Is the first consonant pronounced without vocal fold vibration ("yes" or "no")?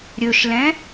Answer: no